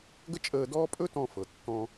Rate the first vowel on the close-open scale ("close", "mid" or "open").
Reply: mid